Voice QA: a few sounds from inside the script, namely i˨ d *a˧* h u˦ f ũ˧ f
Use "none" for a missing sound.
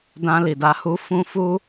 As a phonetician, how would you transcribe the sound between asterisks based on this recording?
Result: a˧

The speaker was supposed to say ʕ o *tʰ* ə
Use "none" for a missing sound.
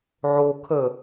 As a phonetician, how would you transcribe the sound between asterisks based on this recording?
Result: kʰ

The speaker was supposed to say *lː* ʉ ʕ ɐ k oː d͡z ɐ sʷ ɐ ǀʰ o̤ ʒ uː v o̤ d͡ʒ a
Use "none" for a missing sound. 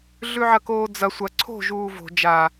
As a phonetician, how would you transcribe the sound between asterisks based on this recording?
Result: ɮ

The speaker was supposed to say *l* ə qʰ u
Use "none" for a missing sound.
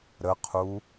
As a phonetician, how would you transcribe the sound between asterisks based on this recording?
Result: ɾ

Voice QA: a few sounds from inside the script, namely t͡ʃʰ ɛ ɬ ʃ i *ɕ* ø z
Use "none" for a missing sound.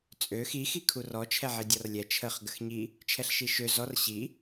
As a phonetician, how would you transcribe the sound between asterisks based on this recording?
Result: ʃ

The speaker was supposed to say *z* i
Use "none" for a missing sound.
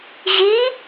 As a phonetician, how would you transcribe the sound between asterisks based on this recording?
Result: ʑ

